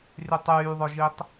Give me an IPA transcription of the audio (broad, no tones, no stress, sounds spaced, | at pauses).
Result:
r y tˤ yː ðˤ œ ʒ i tˤ